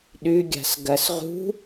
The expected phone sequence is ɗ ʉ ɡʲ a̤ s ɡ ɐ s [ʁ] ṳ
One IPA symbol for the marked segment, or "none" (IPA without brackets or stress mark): ʁ